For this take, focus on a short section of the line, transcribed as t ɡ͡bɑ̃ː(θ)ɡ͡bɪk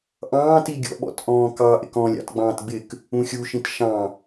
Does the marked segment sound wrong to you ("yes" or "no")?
yes